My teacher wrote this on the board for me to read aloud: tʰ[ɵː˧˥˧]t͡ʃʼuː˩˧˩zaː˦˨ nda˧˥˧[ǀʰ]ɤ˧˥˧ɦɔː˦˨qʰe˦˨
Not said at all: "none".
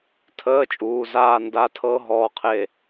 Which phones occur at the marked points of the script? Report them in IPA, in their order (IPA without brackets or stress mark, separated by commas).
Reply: əː˧˥˧, tʰ